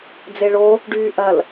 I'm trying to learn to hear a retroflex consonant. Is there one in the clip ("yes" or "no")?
yes